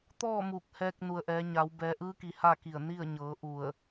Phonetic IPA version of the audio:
t̪ ɔː˥˨ m uː˧˩ k̚ h ɛː˧ k̚ n u˩ ə̯ ʔ ɛː˩˧ ɲ a˩˧ w b ɛː˩˧ ʔ ɯː˧˥ k i˩ h a˥˨ k i˧˩ ə̯ n i˥˨ ə̯ ɲ ɤː˩˧ ʔ u˧˩ ə̯

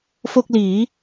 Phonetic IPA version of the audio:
f o˥˩ k̚ l iː˩˦

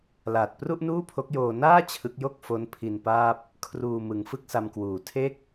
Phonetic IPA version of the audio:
l aː˨˩ t̚ p r u˥˩ ʔ n uː˥˩ pʰ o˦˥ k̚ j oː˧ n aː˥˩ t͡ɕʰ ɯ˦˥ k̚ j o˥˩ k̚ f o˦˥ n pʰ i˧ n p aː˥˩ p̚ | kʰ r uː˧ m ɯ˩˦ ŋ f ɯ˥˩ k̚ s a˧ m k w uː˨˩ tʰ e˥˩ k̚

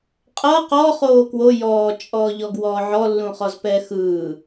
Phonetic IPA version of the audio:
qʼ ɤ q ɔ χ oː k w o j ɔː t͡ʃʼ ɔː ʎ ɔ ɡ w ɔː ʕ ɔ lː ũ χ ɔ z p ɛ x ɯː

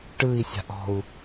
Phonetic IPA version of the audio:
ʈ ɯ i̯ sʲ a̤ ʔ ɔ̤ u̯

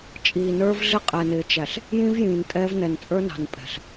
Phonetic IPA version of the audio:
t͡ʃʼ iː˨ n ə˞˦ v ɮ ɪ˦ qʼ ɛ˨ n ɪː˨ t͡ʃ æ˨ ɬ | j ĩ˦ v j ĩː˨ n tʼ ɛː˦ v n ɛ˨ n t͡sʼ ə˞˦ n ɑ̤˨ n pʼ ɛ̤˨ ɬ

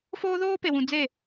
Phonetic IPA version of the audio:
f oː˦ ð oː˦ p e˨ w ũ˨ d͡z e˦˨

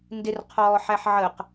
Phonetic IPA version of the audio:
n d ɪ r qʰ ɔː ħ æ ħ ʕ ə q

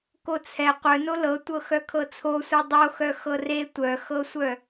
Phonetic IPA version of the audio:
k o t͡sʰ ɛ qʷ œ n o l ɤ tʷ ɤ x œ kʰ ɤ t͡sʰ o sʷ e dˤ o x œ x ɤ r e tʷ œ x ɤ sʷ œ

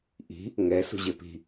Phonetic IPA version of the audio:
ʔ i̤ | ŋ ɛ s ṳ ʑ e p i̤

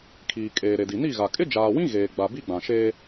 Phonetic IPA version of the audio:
kʰ iː˨ kʼ eː˨ ɾ e˨ d i˨ n i˦˨ ɣ a˨ kʼ ɪ˦ d͡ʒ aː˨ w ĩ˦ ɣ eː˨ ɡ͡b a˨ b i˦ ɡ͡b ã˨ ʃ eː˦

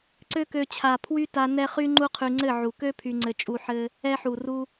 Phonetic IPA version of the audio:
ǀ ø˦ k ø˧ t͡ɕʰ a˨ pʰ w y˦ t a˧ n ɛ˦ χ y˦ ŋ͡ǃ u˦ qʰ y˧ ŋ͡ǀ ɘ˦˨ ʕ u˨ k ø˦ pʰ y˧ ŋ͡ǀ ɘ˧ t͡ʃʼ u˧ ħ ɘ˧ | ɛ˧ ħ u˨ r u˧

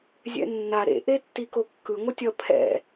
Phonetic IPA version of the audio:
zʲ ɛ̰ nː a ɾ ḛ ʔ e tː i k o kː ɯ ŋʷ ʌ tʲ ʌ pʰ ɛ̰

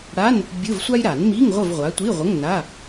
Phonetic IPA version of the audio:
ɽ a˧˥˧ n | bʲ ɯ˧˥˧ v sʷ a˥ j ɾ a˨˩˦ n m i˧˥˧ ŋ ʁʷ ə˦˨ v ʁʷ a˨˦ tʷ i˧˥˧ ʁʷ ə˧˥˧ ŋ n a˧˥˧

